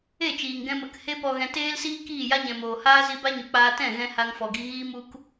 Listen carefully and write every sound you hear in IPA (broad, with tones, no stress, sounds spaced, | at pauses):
e˦˨ t͡ʃ iː˨ ŋ ɡ ɛ̃˧ m ə˨˦ k h e˦ p ɔ˧ ɣ ɛ̃˧ t eː˦ l s iː˦ k iː˦˨ j a˦ ɲ ɛ̃˨ m oː˨ h aː˦ z i˧ b a˦ ɲ u˨ k͡p aː˧ t ɛ̃˦˨ ɣ ɛ̃˧ h a˧ ŋ f ɔ˨ ɡ i˧ ɣ iː˦ m u˦ k